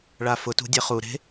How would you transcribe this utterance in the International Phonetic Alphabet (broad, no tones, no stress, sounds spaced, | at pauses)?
ɭ a f ʊ t ṳ dʲ e χ u ɾ e̤